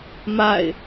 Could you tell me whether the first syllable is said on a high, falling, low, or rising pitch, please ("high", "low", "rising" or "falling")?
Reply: falling